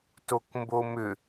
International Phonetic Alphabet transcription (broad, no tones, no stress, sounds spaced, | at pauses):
t o k m b o m ʏ